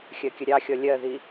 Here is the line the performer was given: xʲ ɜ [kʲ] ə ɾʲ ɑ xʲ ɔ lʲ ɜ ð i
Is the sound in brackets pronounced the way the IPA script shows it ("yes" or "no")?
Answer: yes